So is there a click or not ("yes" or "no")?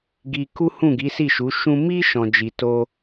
no